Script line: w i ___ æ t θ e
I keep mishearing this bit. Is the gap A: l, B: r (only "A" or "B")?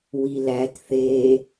A